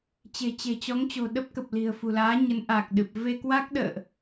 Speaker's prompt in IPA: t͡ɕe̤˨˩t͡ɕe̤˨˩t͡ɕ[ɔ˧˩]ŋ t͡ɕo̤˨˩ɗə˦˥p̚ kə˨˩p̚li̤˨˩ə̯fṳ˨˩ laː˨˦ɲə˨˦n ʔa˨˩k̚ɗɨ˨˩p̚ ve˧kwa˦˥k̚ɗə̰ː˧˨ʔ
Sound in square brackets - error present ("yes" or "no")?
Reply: yes